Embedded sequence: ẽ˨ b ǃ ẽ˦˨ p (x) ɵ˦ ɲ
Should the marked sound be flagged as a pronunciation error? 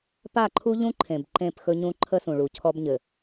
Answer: no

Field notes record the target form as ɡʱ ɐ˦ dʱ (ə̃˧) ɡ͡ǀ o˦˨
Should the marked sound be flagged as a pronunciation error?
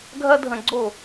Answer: no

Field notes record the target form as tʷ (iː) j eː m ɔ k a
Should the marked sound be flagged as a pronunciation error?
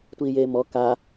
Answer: no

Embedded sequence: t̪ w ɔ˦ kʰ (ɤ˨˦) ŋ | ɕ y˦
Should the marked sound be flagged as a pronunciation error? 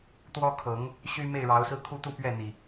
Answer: no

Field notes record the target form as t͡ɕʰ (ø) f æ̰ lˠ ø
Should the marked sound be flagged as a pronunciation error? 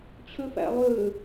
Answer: no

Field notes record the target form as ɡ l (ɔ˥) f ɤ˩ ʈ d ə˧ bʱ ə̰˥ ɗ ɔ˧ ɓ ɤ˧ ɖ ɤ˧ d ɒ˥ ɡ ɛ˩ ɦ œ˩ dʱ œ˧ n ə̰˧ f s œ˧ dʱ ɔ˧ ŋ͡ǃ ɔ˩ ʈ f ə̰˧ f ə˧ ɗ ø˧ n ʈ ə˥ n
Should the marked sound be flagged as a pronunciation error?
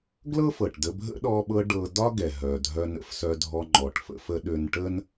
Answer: yes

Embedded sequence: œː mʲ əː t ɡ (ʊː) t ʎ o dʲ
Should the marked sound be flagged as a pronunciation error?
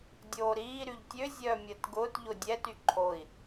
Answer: no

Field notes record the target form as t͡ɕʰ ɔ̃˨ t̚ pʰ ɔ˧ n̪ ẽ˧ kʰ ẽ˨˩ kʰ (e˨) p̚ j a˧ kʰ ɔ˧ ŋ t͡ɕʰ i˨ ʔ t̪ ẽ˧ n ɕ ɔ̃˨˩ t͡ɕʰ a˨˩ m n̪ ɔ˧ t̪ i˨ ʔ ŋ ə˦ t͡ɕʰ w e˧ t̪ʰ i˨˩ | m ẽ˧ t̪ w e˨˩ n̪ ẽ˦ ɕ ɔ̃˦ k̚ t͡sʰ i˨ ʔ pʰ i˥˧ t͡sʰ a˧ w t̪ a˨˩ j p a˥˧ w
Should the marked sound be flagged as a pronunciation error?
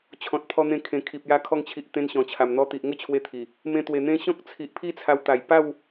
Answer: yes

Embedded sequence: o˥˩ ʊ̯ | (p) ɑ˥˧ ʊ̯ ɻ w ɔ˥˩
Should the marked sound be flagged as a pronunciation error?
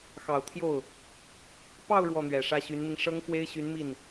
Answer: no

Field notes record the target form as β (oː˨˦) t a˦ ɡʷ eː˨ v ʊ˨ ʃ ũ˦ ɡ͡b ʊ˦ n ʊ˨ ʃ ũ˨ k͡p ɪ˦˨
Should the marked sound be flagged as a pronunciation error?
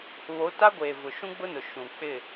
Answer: yes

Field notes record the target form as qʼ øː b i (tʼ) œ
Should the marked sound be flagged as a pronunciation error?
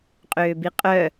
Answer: yes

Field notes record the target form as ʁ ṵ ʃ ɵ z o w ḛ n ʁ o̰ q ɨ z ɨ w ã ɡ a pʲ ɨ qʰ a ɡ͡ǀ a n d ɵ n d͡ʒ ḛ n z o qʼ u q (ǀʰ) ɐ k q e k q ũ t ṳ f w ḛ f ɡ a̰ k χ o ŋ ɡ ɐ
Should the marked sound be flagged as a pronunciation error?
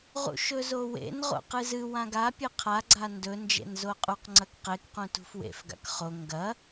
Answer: yes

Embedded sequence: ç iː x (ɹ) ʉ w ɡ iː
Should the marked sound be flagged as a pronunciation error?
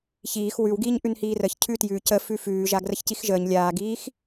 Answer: yes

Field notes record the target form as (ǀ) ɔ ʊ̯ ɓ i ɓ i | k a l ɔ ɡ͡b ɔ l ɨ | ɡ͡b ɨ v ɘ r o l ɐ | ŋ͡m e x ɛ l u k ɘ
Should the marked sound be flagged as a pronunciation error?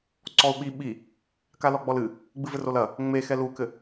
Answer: no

